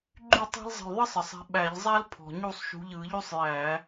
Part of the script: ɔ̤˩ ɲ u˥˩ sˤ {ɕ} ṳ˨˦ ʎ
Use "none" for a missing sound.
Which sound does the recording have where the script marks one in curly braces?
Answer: ʃ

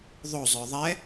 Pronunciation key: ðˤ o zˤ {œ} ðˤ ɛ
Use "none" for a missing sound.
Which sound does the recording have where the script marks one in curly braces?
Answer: œ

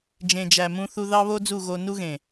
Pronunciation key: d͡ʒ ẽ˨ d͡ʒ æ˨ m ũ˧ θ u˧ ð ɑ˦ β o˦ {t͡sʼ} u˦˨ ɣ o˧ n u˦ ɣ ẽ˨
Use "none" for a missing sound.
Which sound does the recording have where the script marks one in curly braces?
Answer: d͡z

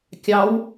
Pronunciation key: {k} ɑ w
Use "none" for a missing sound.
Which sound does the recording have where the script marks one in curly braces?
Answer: kʲ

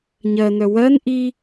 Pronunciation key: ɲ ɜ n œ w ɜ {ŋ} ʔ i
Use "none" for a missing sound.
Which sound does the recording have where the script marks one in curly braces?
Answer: n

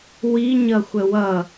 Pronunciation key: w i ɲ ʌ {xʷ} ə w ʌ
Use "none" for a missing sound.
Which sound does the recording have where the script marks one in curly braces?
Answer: xʷ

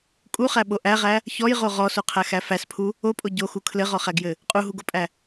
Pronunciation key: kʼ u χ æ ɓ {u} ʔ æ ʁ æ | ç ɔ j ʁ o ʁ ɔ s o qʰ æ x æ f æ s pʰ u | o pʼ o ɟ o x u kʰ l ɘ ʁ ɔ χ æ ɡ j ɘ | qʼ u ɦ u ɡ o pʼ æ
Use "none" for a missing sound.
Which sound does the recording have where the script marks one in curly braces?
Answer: o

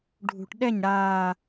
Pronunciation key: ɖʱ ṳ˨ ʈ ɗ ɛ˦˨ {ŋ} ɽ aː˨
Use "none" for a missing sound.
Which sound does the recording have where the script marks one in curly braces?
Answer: ɲ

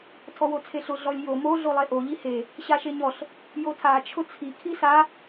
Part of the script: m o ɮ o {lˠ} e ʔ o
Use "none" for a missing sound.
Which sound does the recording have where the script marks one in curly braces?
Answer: lˠ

